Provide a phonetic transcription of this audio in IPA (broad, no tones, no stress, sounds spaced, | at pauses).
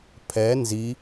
pʰ ɛ n z i